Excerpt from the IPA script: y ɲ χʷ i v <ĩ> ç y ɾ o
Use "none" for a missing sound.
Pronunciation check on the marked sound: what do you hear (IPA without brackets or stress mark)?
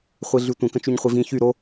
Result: ĩ